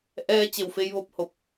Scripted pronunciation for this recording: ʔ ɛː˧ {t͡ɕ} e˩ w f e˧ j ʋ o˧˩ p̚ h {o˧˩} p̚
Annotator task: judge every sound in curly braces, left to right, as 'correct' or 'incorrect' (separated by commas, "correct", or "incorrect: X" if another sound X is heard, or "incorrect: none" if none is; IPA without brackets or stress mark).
correct, correct